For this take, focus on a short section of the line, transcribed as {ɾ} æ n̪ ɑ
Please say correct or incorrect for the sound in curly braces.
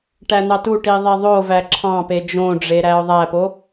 incorrect